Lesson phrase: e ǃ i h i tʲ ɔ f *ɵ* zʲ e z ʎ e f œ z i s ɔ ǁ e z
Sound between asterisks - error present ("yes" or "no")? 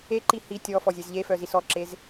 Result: yes